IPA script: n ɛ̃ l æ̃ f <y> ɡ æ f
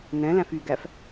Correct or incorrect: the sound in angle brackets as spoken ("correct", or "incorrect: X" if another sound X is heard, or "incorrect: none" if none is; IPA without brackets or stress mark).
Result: correct